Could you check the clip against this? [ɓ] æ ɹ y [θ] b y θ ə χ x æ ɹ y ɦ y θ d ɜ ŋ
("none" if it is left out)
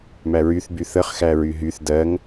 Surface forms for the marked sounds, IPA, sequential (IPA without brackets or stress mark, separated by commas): m, θ